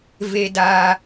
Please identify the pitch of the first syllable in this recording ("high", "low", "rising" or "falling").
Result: low